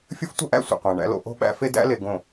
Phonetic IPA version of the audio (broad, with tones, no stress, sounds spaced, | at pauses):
fʲ ə˦ f tʷ ə˦ ʔ æ̰˦ sʷ ə̰˨ qʷ æ̃˨ ɳ æ̰˦ l o̰˦ ʔ o̤˦ ɓ æ̰˦ f e˦ d æ̰˦ l e˨ ɡ õ˨